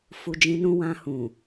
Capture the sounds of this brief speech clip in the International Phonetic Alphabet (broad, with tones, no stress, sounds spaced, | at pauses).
f u˨ d͡ʒ ĩ˧ n ũ˧ w ã˧ h ũ˨